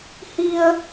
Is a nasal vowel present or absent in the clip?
absent